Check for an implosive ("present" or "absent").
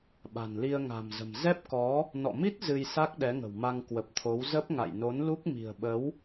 present